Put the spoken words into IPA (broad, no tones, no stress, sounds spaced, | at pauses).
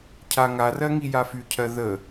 cʰ a ŋ a r ɜ ŋ i j a f y cʰ ɜ ð ə